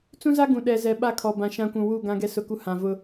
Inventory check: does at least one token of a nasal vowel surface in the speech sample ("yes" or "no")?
yes